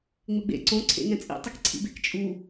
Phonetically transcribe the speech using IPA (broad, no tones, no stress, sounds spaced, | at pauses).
ŋ͡m ɪ ɡ͡b ḛ ǀ õ ǀʰ ḛ ŋ ɛ̃ t͡sʼ ḭ tˤ ɪ k ǀʰ ḭ b e k t͡ʃʼ u